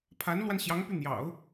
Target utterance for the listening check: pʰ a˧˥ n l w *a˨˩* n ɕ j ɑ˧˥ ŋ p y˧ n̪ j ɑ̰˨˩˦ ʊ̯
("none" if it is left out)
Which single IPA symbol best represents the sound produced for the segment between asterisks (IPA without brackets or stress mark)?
a˧